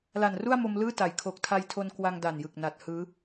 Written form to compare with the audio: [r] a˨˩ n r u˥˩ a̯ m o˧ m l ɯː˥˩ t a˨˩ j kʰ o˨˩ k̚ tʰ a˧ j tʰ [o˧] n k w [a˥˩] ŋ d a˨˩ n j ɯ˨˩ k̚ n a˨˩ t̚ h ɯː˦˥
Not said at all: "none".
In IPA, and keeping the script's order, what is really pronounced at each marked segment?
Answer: l, o˧, a˧

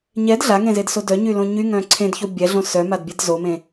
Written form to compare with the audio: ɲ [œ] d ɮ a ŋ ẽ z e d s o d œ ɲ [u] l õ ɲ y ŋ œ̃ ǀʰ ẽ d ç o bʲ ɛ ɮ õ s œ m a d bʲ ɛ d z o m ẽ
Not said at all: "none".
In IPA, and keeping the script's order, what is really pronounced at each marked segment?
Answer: ɛ, y

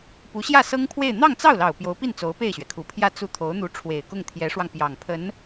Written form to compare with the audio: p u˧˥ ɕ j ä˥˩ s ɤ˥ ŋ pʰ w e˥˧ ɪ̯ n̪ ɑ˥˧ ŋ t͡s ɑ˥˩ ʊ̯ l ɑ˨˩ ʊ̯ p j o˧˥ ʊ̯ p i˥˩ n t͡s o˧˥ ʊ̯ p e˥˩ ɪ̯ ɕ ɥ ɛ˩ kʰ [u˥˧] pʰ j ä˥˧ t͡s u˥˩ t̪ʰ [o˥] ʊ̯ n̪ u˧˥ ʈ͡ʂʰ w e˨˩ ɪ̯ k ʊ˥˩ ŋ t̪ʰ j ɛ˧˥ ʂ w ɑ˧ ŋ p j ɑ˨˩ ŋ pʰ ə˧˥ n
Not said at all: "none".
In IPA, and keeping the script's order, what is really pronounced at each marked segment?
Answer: u˨˩, o˧˥

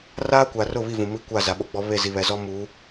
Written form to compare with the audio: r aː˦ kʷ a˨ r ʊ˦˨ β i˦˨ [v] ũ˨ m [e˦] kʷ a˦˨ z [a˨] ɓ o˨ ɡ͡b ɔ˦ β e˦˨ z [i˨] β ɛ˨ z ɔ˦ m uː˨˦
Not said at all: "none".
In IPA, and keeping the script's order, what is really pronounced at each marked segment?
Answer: v, i˦, a˨, i˨

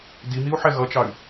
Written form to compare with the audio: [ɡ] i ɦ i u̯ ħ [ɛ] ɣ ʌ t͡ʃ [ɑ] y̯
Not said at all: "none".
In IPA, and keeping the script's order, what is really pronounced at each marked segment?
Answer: d, ɛ, ɑ

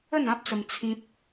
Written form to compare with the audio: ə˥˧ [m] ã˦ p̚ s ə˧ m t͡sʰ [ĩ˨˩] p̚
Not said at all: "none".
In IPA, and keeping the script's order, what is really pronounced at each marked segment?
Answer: n, ĩ˦

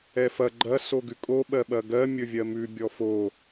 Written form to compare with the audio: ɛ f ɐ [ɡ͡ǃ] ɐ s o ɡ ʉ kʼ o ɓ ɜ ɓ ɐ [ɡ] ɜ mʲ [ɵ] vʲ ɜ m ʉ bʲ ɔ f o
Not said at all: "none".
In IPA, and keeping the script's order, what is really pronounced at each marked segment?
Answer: ɡ͡ǃ, ɡ, ɵ

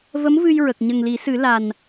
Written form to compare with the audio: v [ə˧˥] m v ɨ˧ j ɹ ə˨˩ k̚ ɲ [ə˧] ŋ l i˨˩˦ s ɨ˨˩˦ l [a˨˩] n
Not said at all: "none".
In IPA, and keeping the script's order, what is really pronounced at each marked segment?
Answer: ə˧˥, ə˨˩, a˨˩

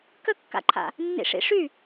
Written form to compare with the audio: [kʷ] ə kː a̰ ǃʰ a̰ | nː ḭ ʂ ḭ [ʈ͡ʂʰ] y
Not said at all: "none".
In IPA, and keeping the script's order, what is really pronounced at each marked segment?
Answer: k, ʂ

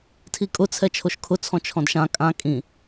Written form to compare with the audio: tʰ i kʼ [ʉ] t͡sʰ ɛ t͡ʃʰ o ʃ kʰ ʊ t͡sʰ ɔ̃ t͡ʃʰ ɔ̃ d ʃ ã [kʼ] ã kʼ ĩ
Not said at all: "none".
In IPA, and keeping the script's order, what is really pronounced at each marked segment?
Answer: ʊ, kʼ

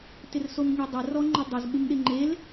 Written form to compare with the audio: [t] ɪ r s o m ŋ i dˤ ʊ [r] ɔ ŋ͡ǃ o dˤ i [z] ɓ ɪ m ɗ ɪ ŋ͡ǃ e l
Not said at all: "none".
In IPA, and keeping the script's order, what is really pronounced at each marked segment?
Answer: t, r, z

